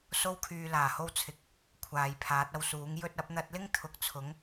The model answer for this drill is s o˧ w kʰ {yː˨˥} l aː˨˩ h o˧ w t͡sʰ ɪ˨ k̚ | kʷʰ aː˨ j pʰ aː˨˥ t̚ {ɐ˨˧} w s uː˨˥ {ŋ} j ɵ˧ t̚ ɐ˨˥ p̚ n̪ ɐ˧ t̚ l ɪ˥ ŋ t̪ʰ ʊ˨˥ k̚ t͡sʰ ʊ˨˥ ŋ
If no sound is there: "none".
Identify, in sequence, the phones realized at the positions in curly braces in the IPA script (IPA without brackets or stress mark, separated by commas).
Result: yː˨, ɐ˧, ŋ